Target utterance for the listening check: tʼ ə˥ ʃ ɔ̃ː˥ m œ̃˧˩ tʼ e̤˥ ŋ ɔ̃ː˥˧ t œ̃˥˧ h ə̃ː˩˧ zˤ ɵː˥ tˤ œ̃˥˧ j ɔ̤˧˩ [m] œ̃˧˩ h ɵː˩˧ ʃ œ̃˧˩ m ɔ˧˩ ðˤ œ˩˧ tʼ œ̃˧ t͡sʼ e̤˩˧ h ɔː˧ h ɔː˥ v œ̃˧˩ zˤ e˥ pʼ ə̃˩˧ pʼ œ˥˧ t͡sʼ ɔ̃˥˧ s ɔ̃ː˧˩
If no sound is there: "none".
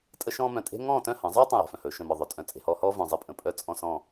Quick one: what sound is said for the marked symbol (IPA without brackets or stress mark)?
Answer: f